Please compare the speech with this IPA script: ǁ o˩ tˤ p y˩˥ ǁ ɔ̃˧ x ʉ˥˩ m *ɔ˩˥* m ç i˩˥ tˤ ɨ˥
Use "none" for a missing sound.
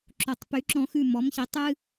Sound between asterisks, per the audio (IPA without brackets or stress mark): ɔ˩˥